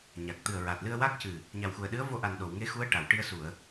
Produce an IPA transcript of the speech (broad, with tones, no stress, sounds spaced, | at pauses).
ɲ a˨˩ k̚ t̪ ɨ˨˩ ə̯ ɹ a˨˩ t̚ l ɨ˧ ə̯ w a˦˥ k̚ c ɨ˨˩ | ɲ a˨˩ w x u˨˩ ə̯ ɗ ɨ˧˥ ə̯ v o˧ ʔ a˨˩ n ɗ o˨˩˨ w ŋ e˧˥ x u˧˥ ə̯ ʈ a˨˩˨ w ʈ i˧ ə̯ s u˨˩˨ ə̯